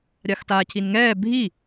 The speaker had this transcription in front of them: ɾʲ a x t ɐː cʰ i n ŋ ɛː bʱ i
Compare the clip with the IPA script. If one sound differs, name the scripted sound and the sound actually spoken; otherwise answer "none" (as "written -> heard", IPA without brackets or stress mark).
ɐː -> aː